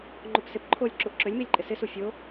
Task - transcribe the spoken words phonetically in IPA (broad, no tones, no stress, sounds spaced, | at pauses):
ŋ͡ǃ o p s ɪ p ǃʰ o lʲ ǁ u ʔ ǁ ø lʲ m i lʲ ǃʼ ɪ s ɪ s u fʲ o